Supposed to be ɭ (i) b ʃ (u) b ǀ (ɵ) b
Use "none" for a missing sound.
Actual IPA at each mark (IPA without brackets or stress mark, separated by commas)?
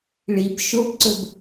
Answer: i, o, ɵ